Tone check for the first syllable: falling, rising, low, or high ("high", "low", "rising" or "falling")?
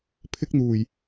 high